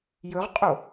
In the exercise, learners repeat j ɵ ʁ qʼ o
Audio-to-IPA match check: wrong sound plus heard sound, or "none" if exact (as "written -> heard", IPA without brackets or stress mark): none